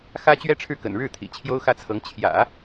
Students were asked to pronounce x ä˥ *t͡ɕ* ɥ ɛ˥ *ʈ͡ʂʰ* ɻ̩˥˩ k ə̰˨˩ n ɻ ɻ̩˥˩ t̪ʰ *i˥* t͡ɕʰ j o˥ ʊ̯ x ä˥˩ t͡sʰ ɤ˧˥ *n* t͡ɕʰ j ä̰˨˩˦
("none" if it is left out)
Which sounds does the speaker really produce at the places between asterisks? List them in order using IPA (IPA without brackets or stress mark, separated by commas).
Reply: t͡ɕ, ʈ͡ʂʰ, ḭ˨˩, ŋ